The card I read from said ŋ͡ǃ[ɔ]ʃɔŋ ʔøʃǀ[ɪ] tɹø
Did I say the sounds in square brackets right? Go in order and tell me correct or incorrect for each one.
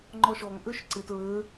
correct, correct

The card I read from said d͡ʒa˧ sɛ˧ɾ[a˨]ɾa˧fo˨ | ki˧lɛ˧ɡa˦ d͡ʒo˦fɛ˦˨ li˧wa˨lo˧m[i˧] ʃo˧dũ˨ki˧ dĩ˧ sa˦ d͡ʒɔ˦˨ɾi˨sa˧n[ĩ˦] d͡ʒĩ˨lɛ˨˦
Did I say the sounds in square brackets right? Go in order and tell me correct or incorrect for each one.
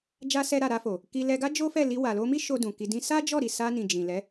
correct, incorrect: i˦, incorrect: ĩ˨

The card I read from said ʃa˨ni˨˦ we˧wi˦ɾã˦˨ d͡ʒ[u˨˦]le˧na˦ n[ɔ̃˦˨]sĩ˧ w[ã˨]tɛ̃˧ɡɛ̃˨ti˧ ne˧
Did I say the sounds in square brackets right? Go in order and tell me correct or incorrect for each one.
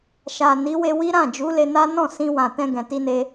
correct, correct, correct

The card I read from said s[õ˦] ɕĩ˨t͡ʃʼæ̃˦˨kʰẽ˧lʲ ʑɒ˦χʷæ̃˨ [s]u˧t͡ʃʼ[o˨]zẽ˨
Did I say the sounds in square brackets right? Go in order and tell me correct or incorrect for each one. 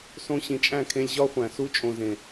incorrect: õ˧, correct, incorrect: õ˨

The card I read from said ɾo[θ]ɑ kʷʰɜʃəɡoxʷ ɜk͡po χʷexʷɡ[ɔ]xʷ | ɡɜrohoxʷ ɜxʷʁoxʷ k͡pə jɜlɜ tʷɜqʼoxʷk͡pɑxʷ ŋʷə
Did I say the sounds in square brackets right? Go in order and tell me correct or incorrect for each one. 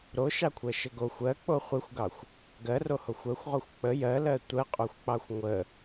incorrect: ʃ, incorrect: ɑ

